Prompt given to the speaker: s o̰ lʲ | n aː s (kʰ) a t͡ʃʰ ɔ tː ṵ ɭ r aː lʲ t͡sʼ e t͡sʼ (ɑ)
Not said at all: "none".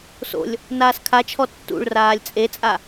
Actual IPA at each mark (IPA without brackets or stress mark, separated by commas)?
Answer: kʰ, a